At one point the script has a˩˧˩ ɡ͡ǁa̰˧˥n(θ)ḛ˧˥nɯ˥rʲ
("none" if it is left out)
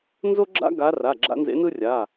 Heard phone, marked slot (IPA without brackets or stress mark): z